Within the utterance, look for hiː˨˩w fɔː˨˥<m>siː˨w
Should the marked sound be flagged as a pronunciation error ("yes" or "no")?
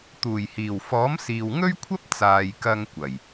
no